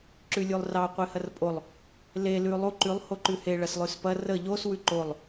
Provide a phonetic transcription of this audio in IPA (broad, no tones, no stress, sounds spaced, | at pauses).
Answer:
ǁ ʉ lʲ u lˠ r ɑ qʷ e h ɐ r pʼ o lˠ | l e l ʉ lˠ u ǃ ʉ lˠ h o ǃ ʉ h e ɭ ɐ s lˠ ʉ s p ɐ r ə ʎ o s w ʉ ǃ o lˠ